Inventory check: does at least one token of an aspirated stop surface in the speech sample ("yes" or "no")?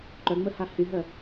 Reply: no